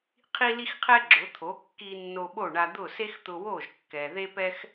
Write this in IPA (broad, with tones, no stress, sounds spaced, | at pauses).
qʰ i˥ l i˥ x qʰ ɛ˥ ɡ͡ǁ ʊ˩˥ t̪ʰ o˩˥ kː i˧ nː o˧ ɓ o˥˩ ɳ a˧ d̪ ʊ˥˩ s e˥ x t̪ ʊ˧ w o˥˩ ʒ kː ɛ˩ ð e˥ p ɛ˥ x